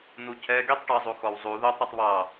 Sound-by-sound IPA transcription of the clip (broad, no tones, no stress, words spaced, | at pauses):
n̪ucʰɛ ɡitˤ ʈoɪ̯zˤuxɔwzˤu ðotˤ ɾʉtˤβɑ